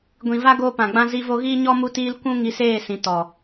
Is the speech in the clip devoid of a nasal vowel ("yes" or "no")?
no